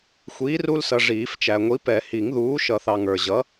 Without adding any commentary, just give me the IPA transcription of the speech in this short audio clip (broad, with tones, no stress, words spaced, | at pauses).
xʷiː˨˥ru˦lsʌ˨ ʐiː˨˩˦ft͡ʃæ˨ŋʷi˨˥ pɛ˨˩˦hi˨˩˦ŋðuː˨˥ ʃʌ˨˩˦θɑ˨ ŋə˞˨ʑʌ˨˥